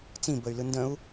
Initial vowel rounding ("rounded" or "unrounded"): unrounded